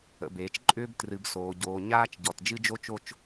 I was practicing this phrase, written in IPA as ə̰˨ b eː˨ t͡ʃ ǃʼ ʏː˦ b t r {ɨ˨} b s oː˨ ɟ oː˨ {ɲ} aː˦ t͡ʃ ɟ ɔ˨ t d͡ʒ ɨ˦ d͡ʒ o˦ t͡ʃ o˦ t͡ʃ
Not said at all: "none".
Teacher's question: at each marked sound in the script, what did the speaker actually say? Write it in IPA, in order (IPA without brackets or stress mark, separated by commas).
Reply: ɨ˨, ɲ